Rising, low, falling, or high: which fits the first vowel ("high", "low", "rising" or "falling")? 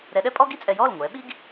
rising